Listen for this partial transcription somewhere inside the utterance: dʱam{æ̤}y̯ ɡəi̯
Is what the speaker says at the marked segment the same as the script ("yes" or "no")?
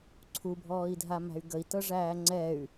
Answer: yes